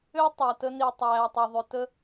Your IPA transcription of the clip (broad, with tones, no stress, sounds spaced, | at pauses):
ø˦ tˤ æ˨ t ə˦ n i˨ tˤ æː˨ tˤ ɛ˨ ðˤ ʏ˨ t ə˦